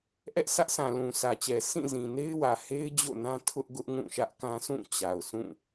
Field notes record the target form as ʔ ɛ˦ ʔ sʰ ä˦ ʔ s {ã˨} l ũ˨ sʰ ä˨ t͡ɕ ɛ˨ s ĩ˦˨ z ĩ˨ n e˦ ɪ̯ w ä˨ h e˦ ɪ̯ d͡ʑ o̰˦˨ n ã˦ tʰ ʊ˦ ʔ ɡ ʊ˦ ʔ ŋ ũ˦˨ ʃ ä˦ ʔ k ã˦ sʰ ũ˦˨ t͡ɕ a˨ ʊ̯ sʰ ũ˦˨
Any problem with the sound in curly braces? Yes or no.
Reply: no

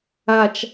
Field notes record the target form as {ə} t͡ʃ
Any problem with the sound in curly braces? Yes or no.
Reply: yes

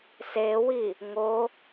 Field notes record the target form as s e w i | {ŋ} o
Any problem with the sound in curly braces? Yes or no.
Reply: no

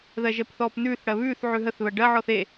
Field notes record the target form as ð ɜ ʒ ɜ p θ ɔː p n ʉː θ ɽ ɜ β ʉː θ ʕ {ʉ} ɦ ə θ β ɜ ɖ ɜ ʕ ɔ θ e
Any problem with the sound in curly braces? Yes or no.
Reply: no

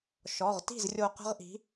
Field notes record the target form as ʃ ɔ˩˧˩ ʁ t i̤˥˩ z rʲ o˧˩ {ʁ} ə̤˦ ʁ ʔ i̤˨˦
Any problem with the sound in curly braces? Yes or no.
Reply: yes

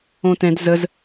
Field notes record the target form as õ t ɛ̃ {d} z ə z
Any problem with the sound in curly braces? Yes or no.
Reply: no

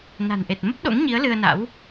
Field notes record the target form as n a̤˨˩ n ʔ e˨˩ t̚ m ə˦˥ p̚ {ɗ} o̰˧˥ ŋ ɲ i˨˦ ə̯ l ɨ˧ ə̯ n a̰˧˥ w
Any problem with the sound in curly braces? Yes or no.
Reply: no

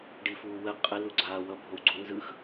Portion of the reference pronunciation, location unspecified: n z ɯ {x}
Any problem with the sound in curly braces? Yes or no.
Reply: no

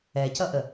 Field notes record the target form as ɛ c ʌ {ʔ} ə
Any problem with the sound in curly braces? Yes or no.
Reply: no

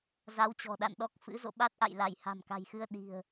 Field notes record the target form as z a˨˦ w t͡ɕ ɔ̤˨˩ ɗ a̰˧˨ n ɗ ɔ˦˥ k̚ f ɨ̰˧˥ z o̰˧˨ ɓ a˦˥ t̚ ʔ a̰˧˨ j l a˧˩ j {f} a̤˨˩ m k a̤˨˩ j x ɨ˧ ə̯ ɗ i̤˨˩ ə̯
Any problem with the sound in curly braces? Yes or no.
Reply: yes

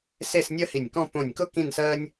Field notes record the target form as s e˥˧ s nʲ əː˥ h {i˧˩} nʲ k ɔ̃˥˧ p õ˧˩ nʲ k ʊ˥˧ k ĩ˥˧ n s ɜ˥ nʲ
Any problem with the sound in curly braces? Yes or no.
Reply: no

